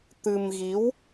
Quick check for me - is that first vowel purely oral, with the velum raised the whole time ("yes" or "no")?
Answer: yes